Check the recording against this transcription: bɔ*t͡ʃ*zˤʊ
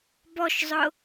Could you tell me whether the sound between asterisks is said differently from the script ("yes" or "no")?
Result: yes